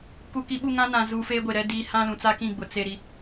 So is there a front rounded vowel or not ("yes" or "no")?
no